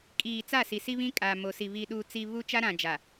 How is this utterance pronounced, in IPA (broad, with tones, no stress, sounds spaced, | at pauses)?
kʼ iː˨ t͡s a˦˨ s i˨ s i˦ β ĩ˦ kʼ a˨ m o˨ s i˨ β i˨ ɗ uː˨ t͡s i˨ β u˦ t͡ʃ a˦ ɾ ã˨ d͡ʒ a˨